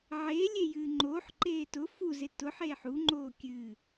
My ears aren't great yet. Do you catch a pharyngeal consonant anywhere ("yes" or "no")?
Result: yes